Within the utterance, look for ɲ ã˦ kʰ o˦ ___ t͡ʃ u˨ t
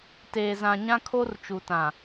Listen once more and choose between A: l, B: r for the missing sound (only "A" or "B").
B